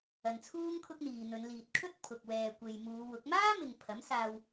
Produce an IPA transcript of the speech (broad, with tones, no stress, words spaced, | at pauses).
ɐ˨nt͡sʰuː˥ŋ kʰʊ˥k̚n̪iː˨ n̪ɵ˨˧nliː˨t̚kʰɵ˥t̚ pʰʊ˨k̚wɛː˨kʷe˨j muː˨˧wʊ˨˥k̚ maː˥mɪ˨ŋ pʰɐ˨˥msaː˧w